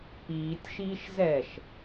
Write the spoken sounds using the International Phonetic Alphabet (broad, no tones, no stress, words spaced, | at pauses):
piːtʲʃiːʃ zɛʃ